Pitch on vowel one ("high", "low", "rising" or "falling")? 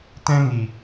high